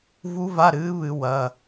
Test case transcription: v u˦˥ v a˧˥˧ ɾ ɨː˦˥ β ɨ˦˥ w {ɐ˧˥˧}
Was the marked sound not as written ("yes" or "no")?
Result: no